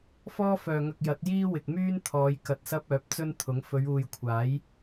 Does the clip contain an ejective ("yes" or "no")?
no